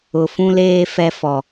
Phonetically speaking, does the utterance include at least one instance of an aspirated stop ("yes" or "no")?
no